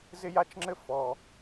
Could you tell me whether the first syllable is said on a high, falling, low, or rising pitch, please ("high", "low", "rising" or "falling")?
high